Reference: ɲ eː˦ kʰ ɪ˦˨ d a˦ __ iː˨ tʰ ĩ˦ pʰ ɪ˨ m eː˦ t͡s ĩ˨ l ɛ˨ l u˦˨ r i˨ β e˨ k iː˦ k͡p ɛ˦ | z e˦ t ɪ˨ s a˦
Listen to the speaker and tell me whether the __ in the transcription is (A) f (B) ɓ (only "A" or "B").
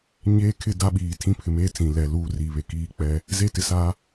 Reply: B